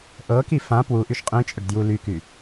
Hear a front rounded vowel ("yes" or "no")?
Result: yes